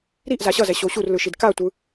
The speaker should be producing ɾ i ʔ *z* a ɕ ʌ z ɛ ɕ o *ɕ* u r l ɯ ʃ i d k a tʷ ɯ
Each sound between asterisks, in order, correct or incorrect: correct, correct

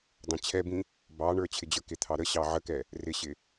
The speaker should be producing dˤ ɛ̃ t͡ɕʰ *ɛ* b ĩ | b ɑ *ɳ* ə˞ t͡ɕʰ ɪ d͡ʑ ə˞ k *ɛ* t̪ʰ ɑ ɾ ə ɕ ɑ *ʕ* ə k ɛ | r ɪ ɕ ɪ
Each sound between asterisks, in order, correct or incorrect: correct, correct, incorrect, correct

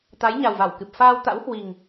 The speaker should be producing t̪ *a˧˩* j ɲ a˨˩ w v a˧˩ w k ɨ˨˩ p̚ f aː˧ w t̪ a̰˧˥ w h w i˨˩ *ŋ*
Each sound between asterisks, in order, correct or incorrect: incorrect, correct

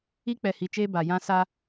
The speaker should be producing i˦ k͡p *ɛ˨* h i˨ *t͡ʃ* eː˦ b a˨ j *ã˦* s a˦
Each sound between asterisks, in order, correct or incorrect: correct, correct, correct

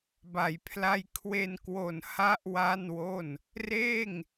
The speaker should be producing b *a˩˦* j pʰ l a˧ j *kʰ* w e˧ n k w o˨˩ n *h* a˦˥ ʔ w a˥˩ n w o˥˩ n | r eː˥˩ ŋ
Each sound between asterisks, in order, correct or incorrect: correct, correct, correct

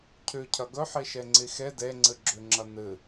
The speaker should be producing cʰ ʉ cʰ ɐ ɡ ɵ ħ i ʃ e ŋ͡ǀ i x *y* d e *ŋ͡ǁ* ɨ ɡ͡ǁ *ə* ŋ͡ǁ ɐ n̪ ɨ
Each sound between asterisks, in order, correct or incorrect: incorrect, incorrect, incorrect

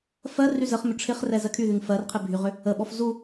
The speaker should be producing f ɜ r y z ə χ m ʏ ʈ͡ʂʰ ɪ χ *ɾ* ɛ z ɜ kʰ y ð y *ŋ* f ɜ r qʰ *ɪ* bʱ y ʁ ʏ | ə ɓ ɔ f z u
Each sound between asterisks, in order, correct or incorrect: incorrect, correct, correct

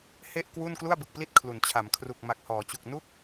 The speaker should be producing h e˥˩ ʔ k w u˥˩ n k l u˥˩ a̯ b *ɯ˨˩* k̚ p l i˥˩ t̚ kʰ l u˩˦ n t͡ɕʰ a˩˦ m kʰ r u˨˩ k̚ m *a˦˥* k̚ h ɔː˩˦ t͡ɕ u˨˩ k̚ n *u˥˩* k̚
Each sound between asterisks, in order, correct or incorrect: correct, incorrect, correct

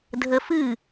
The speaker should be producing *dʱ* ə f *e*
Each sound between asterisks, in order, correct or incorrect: correct, incorrect

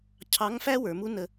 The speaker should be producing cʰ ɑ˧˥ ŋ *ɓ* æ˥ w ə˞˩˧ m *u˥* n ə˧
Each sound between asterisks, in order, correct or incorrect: incorrect, correct

